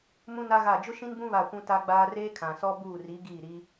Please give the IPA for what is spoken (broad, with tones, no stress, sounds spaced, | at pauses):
m ũ˦ n a˦ ɣ a˦˨ d͡ʒ ʊ˦ ʃ ĩ˦ n b ũ˦ β a˦˨ kʷ ũ˦ t a˦ ɡ͡b aː˦ r eː˦ kʰ ã˨ s ɔ˦ b uː˦˨ r i˨˦ ɡ iː˦˨ ɾ i˦